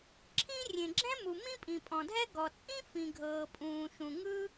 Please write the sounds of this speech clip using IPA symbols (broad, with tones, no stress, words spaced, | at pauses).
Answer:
ǁʰĩ˥ rʲẽ˩ɡ͡ǁɛ̃˥mu˩ mĩ˥pʼĩ˩pʼɔ̃˩dʱɛ˥ ɡɔ˩t͡sʼĩ˥ fĩ˩ɡʱɤː˩pʼũː˩ ʃũ˩ ŋɯ˥